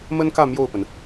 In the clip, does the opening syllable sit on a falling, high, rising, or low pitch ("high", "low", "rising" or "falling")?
high